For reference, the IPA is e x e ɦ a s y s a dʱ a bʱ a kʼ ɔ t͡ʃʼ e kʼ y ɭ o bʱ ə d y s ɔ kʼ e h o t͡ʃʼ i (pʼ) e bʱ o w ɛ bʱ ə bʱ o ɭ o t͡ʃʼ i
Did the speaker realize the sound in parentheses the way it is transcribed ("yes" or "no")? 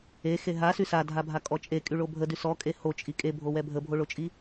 no